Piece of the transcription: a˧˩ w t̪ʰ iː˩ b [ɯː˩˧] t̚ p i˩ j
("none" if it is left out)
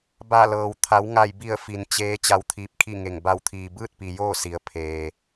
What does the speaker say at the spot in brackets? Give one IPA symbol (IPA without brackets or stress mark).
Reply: ɯː˥˨